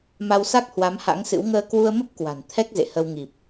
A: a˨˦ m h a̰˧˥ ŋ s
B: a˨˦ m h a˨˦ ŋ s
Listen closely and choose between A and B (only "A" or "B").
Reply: A